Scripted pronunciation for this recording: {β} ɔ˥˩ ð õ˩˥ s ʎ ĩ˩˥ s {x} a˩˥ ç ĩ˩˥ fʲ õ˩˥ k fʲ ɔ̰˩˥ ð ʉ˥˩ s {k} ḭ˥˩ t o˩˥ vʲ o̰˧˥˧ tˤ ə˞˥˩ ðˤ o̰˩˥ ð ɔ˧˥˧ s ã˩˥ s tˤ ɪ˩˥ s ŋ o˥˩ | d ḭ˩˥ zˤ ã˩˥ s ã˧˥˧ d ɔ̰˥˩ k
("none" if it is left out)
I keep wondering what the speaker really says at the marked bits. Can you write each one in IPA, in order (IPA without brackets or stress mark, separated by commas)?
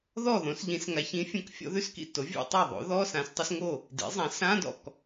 ð, ŋ, k